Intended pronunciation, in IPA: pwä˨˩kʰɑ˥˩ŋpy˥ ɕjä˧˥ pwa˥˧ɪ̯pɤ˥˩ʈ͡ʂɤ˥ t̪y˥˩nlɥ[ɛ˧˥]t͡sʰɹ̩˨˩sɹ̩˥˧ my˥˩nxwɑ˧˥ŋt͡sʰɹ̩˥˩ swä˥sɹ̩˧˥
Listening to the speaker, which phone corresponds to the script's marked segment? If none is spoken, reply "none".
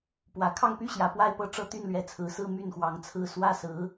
ɛ˧˥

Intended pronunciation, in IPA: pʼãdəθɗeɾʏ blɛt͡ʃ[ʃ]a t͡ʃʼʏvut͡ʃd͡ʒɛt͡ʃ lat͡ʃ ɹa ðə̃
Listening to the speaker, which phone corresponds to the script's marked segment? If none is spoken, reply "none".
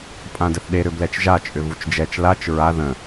ʒ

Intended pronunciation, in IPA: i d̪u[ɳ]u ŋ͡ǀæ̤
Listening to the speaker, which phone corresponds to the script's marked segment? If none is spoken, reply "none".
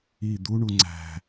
ɳ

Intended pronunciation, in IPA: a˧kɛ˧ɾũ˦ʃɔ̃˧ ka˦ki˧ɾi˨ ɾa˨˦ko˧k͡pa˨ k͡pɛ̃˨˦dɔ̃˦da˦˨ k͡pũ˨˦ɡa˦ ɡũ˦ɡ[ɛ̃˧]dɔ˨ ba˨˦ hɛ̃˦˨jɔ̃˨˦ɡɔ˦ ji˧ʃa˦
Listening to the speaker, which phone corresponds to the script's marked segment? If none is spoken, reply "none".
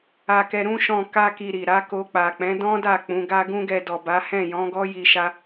ɛ˧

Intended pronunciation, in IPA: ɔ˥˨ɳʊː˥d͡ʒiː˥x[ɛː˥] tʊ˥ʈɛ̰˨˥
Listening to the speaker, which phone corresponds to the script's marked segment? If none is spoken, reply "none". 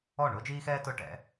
ɛː˥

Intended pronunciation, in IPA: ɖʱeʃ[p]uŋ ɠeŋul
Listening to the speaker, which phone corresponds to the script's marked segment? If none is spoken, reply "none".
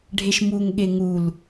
m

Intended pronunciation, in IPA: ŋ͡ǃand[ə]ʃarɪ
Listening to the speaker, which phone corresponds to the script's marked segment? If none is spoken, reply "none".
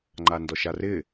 ɔ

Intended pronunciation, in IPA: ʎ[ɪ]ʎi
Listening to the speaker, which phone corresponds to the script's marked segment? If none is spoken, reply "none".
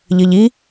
ə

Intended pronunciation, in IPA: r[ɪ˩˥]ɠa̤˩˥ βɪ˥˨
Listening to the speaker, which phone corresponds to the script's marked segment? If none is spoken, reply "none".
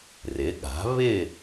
ɪ˩˥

